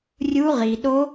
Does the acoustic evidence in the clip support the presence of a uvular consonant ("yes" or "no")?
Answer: yes